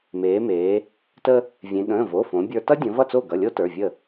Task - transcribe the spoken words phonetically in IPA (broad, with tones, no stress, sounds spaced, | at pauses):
m eː˩˧ m eː˩˧ | t ə˧ | vʲ ẽ˩˧ ɠ ə̃ː˩˧˩ v o˩˧˩ f õ˩˧ bʲ ə˞˧ t ʌ˥ dʲ ə̃˩˧ v ʌ˥˩ t͡s o˥˩ ɡ ʌ˩˧˩ lʲ o˥ t ə˞˩˧˩ vʲ ə˥˩